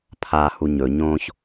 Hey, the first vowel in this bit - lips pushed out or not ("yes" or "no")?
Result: no